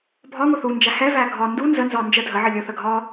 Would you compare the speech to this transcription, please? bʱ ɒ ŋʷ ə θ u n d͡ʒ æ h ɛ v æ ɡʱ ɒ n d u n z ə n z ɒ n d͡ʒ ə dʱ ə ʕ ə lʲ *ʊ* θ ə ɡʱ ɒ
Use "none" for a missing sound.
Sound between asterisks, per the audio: ʊ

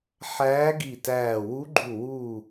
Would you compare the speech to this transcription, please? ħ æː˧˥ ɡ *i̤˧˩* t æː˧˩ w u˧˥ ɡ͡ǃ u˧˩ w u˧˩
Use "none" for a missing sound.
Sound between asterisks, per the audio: i˧˩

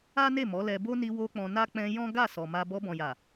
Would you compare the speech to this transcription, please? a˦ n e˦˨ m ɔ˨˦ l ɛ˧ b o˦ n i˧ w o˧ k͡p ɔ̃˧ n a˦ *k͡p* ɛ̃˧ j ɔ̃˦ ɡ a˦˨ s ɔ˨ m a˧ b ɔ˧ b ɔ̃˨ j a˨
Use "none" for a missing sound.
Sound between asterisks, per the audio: k͡p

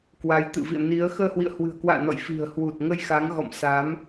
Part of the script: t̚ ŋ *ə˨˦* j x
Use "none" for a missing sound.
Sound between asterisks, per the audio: ə˧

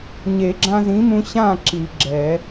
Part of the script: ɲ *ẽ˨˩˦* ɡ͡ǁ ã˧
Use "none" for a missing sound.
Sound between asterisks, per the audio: e˨˩˦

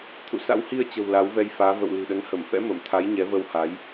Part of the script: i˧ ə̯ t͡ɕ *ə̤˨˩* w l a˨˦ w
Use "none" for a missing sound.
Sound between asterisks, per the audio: ə̤˨˩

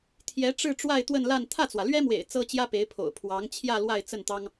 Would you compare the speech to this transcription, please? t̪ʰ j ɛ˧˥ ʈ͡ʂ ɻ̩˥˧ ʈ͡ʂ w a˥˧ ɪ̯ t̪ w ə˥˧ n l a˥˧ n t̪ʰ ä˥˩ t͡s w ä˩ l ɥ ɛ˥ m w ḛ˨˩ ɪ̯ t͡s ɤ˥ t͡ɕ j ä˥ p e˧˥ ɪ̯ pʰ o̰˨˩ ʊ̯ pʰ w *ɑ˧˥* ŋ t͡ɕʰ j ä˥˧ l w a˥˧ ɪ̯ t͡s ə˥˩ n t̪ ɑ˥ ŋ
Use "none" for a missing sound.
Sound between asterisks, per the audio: ɑ˧˥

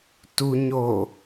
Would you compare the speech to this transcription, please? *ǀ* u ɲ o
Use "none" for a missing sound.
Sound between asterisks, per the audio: t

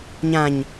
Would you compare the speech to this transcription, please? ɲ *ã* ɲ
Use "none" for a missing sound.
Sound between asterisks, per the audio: ã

